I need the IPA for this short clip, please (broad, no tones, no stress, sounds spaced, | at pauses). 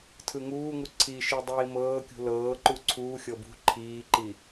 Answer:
tʰ ɯ ŋ uː ŋ u ǀʰ i ʃ i dˤ iː m ɤː kʲ ṳ l ɤː ǃ u ǀʰ uː xʲ ɤ b ṳ ǃʰ iː ǃ i